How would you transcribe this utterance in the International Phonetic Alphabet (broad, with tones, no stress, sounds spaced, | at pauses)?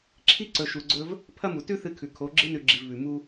ǁʰ i˦ ǀ ɵ˧ ʃ u˧ ɡ͡ǀ ɵ˦ v | pʰ ɐ˦ m u˨ t ʉ˦ θ ɨ˧ kʰ ʉ˨ kʰ o˨˦ ɡ͡ǁ ɨ˦ n ʉ˧ ɡ͡ǁ i˧ v β ʉ˧ m u˦